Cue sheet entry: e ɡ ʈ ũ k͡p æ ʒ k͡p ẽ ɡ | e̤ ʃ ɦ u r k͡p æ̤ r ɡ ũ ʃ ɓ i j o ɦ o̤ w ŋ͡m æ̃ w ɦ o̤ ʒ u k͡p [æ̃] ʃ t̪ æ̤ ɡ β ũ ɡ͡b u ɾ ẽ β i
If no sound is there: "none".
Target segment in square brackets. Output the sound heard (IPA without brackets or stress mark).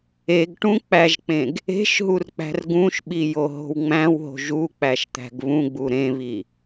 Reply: æ